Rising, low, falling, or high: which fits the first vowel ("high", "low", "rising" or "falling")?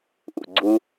low